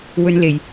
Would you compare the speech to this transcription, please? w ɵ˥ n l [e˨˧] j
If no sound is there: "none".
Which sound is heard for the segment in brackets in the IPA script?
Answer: e˨˧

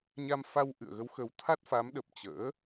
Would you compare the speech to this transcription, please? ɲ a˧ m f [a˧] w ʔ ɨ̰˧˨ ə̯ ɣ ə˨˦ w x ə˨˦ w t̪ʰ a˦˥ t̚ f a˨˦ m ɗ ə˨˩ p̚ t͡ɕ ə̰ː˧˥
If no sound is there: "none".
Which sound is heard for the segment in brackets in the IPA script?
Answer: a˧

